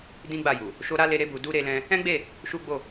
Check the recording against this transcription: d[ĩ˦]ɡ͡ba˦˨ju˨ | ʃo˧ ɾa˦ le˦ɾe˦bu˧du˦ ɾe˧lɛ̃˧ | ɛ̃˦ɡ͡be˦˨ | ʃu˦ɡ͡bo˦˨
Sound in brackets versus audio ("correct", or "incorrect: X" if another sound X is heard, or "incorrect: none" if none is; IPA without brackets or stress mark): correct